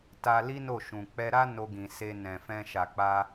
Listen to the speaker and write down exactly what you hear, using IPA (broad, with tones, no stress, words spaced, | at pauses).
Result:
ta˧li˦ no˦˨ʃũ˨ k͡pɛ˧ɾa˦ no˧ɡĩ˨se˧ nɛ̃˨fɛ̃˧ʃa˨ k͡pa˧